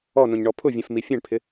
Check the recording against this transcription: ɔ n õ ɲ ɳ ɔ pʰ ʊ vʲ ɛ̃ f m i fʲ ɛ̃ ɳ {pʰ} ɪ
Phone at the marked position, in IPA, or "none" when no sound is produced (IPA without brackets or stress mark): pʰ